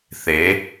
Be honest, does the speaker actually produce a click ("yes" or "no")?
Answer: no